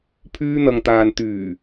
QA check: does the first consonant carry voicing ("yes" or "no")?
no